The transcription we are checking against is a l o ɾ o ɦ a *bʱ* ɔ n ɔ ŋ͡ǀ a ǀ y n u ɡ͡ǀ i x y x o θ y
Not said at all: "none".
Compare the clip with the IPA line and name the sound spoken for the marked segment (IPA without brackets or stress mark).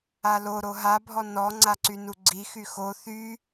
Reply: bʱ